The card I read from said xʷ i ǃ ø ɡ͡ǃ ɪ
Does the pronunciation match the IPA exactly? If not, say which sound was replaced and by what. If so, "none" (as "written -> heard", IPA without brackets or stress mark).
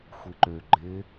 none